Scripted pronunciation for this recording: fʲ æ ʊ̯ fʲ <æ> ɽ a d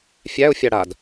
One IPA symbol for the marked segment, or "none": a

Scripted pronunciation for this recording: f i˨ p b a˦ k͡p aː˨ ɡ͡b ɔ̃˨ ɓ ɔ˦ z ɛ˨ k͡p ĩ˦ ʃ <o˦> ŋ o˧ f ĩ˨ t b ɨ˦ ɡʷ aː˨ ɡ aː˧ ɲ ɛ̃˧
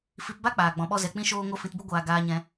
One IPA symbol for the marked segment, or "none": oː˦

